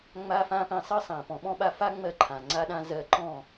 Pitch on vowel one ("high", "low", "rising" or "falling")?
high